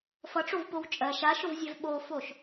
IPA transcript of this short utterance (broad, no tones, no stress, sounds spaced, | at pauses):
f ʌ ʈ͡ʂ o v p o w t͡ʃʼ ɜ ʃ a ʃ ʊ v zʲ ɛ v ɓ o f o ʃ